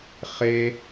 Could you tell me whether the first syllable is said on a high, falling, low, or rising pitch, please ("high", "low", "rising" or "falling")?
high